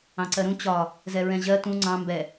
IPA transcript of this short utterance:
ɑ̃ ǀ ɜ ɾ ũ t͡ɕ ɒ | z ɛ ɹ ɛ̃ ʑ ɜ t ũ ŋ͡ǀ ɑ̃ m b ɛ

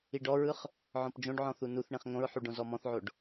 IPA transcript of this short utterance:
i ɖ ɔ ɹ ɯ χ | ʕ ɔ̃ p d͡ʒ õ ɖ ʕ ɔ̃ θ u n u θ ɳ ĩ χ ŋ õ ɹ ħ u ɖ õ z ɔ m ɔ̃ θ ʕ o ɖ

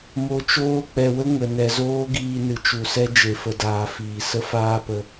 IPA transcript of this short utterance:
m o˧ t͡ʃ oː˦ k͡p ɛ˨ w ə˦ ŋ ə˨ n ɛ˨ z oː˦ ɡ iː˧ n ɨ˨ t͡ʃ u˨ s ɛ˦ d͡ʒ e˨ f ə˨ d aː˨ f iː˨ s ə˦ f aː˦ p ə˧

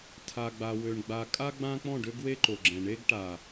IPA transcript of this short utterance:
tʰ a˨ ɡ͡b a˨ w ø˨ ɳ ɡ͡b a˨ kʼ a˦ ɡ͡b ã˦ k͡p ɔ̃˦˨ ɖ ø˦ ɡ w e˦ ǃ o˨ ɡ͡ǁ ɛ̃˨ ɳ e˦ ɡ ʈ a˨

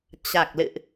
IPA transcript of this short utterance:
t͡ɕ a˨˩ k̚ l ɨ̰˧˨ ʔ

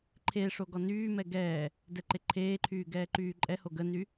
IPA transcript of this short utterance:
ǃʰ e ʂ o ɡ ɔ n yː m ɛ ɡ ɛː | d ɛ ǃ e ǃʰ eː ǃʰ yː ɡ ɛː ǃ yː ǃʼ ɛ h o ɡ ə n y

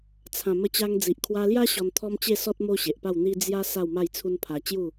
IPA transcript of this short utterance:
t͡sʰ ã˨˩ m ə˧ t͡ɕ a˧ ŋ d͡z i˨ ʔ kʰ w a˧ l j a˦ ɕ ɔ˧ n t̪ʰ ɔ˦ m t͡ɕ e˥˧ s ɔ˦ t̚ m o˦ ɕ e˨ ʔ p a˥˧ w n̪ i˦ d͡z j a˦ s a˥˧ w m a˥˧ j t͡sʰ u˦ n pʰ a˧ t͡ɕ j u˥˧

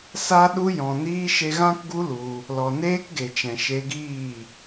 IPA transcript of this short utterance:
s a˦ ɗ u˧ j ɔ̃˨ n iː˧ ʃ e˧ ɣ ã˦ k ɡ u˦ l u˧ | l ɔ˨ n eː˦ k ɡ e˨ t͡ʃ ɛ̃˨ ʃ e˧ ɡ iː˦˨

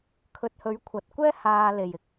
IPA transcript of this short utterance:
kʰ ɵ˨ t̚ h ɵ˨˧ ɥ kʷʰ ɐ˨ t̚ kʷ ɛː˥ h aː˧ l e˨ j ɪ˨ k̚

